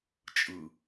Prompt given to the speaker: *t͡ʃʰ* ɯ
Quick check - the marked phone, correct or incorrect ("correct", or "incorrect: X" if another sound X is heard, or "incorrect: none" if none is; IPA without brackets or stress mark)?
incorrect: t͡ʃʼ